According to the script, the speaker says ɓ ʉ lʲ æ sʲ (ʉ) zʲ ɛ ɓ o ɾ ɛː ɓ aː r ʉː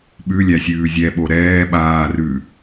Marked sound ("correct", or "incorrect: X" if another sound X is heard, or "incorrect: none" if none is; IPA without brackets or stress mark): incorrect: ʉː